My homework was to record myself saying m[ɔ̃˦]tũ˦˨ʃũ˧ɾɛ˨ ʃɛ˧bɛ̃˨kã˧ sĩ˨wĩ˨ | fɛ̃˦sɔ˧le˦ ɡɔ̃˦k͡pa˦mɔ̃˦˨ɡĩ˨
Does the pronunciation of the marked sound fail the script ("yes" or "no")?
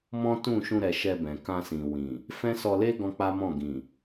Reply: no